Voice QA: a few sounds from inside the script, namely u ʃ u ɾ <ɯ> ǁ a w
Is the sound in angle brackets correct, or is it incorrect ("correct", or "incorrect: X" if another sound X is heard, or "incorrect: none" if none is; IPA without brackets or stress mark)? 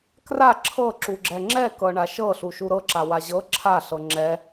incorrect: ɤ